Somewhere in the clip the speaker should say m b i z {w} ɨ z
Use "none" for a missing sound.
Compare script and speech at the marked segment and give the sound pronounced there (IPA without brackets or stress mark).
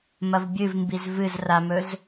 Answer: v